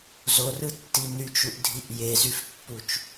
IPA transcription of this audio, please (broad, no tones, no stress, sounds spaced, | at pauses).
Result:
z o r ɯ tː i n y t͡ʃ u ʔ dʱ i ʔ j e z y f pː u t͡ʃ